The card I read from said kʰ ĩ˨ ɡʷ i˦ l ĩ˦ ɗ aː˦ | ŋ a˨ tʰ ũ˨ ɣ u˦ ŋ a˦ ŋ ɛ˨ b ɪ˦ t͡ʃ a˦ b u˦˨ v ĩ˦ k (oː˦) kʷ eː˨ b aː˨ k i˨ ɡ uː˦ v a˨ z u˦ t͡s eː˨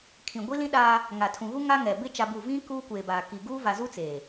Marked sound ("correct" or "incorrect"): incorrect